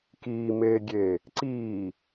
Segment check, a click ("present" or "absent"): present